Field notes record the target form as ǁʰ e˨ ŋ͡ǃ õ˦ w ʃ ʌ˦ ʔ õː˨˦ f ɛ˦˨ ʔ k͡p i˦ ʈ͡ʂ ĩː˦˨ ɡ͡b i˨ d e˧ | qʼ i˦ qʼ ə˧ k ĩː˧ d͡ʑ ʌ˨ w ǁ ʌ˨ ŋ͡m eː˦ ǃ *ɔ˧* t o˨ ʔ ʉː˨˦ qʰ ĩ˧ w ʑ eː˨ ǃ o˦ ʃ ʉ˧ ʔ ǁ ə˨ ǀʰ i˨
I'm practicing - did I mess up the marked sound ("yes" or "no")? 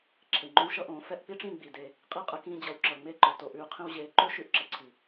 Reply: yes